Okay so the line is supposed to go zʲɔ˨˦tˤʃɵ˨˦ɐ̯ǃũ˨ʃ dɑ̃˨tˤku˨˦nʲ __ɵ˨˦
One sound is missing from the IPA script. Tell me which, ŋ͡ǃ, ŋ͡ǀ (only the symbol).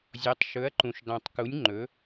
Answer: ŋ͡ǃ